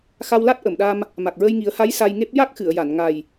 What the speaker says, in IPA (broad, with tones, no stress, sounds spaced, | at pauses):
x a˧ w l a˦˥ t̚ ʔ ə˨˩˨ m ɗ a˧ m | m a˨˩ k̚ ɹ ə˧ j ŋ i˨˩˦ ə̯ h a˧˥ j s a˧ j ŋ e˦˥ p̚ j a˦˥ k̚ x ɨ˨˩˨ ə̯ j a˨˩˨ n ŋ a˨˩ j